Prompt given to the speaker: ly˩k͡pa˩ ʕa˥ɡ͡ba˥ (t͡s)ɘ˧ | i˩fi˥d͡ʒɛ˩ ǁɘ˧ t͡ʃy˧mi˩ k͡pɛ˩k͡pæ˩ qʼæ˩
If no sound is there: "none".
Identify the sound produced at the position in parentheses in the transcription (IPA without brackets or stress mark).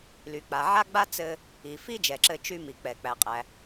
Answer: t͡s